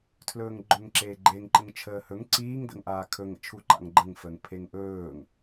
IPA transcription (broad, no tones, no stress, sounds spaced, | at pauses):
tʰ l ɵː ŋ ɡ͡ǃ ɵ ŋ ǁ eː ɡ͡ǃ e ŋ ǃ ə ŋ t͡ʃʰ əː h ɵ ŋ ǀ iː ŋ d ə̰ ŋ ʔ aː kʰ ɵ ŋ ə̰ t͡ʃʰ u ǃ a̰ ŋ ɡ͡ǃ ə ŋ f əː ŋ pʰ e ŋ ʔ ɵː ŋ